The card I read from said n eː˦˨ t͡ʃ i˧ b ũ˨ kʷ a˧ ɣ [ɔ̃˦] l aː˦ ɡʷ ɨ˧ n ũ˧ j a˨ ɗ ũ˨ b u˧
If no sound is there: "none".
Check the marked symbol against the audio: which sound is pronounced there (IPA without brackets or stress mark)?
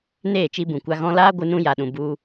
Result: ɔ̃˧